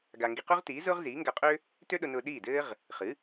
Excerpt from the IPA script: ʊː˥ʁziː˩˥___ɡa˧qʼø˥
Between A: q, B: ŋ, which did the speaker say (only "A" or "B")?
B